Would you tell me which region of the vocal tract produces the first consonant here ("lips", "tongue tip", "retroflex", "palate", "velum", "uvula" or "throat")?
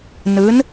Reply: tongue tip